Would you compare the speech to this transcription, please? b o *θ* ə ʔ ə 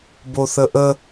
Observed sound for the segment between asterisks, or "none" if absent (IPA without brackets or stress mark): θ